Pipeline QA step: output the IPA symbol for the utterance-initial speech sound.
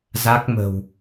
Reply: z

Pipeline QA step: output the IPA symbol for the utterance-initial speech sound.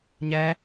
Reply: ɲ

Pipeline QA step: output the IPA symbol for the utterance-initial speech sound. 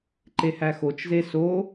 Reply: ǃ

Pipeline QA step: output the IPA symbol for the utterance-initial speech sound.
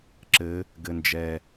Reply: ǁ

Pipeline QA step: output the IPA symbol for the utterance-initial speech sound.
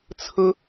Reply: t͡sʰ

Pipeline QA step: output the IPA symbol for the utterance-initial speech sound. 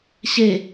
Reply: ɕ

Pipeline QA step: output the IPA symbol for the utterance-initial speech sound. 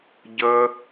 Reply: ɟ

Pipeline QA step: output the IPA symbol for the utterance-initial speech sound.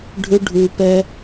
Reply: ɖʱ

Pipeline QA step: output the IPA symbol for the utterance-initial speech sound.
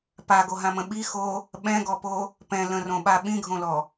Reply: p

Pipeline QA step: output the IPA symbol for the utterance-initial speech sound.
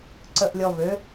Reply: ǀ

